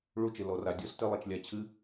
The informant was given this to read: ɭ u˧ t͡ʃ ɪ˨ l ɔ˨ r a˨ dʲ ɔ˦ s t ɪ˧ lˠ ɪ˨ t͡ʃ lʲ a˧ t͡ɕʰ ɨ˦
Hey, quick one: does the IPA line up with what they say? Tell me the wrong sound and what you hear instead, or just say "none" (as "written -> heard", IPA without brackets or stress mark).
none